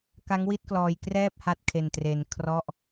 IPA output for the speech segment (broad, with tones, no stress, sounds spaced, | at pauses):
k a˦˥ ŋ w i˥˩ t̚ k l ɔː˧ j k r ɛː˥˩ p̚ h a˦˥ t̚ kʰ e˧ n t r e˧ n kʰ r ɔ˥˩ ʔ